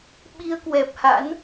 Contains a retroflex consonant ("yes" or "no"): no